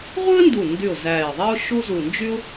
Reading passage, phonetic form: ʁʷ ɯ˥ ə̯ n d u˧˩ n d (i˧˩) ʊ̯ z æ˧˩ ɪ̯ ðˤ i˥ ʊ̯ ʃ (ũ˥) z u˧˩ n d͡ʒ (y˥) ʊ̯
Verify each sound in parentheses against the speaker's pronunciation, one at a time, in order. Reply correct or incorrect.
incorrect: y˧˩, incorrect: u˥, correct

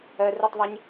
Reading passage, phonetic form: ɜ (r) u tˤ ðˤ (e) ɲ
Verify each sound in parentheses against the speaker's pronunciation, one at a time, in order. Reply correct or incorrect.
correct, correct

